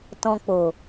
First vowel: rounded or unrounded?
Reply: rounded